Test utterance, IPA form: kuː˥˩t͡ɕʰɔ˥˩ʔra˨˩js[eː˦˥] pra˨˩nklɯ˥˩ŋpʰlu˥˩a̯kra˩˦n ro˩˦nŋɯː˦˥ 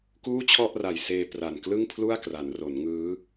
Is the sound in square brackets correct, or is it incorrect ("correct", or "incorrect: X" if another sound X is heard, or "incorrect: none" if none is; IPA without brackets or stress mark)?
incorrect: eː˧